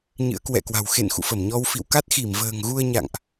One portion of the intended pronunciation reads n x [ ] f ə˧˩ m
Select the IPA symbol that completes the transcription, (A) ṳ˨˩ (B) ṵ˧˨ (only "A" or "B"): B